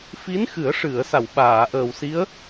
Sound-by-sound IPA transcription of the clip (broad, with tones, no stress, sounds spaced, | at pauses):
f i˧˥ n x ɨ˨˩˦ ə̯ ʂ ɨ˨˩˨ ə̯ s a˨˩˨ w ɓ aː˨˩˨ ʔ əː˨˩ w s i˧˥ ə̯